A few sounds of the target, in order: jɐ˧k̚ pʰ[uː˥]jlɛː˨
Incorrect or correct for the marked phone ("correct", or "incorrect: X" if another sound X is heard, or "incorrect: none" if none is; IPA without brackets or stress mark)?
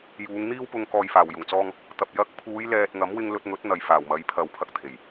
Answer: incorrect: uː˨˧